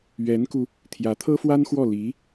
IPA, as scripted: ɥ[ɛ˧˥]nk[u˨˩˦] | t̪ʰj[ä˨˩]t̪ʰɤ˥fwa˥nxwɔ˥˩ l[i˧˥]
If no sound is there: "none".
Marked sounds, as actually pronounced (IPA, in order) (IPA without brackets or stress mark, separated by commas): ɛ˧˥, u˧, ä˧˥, i˧˥